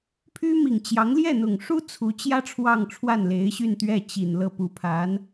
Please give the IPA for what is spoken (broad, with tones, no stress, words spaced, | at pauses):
pʰy˥mi˨˩ŋt͡ɕjɑ˧˥ŋ ljɛ˥˩n̪ʊ˨˩ŋʂu˥ t͡sʰu˧˥t͡ɕjä˥ ʈ͡ʂʰwɑ˥˧ŋʈ͡ʂʰwa˥˩nle˧˥ɪ̯ɕy˥˧n t̪ɥɛ˥˩t͡ɕi˨˩nlɤ˥˩pu˧˥ pʰa˧˥n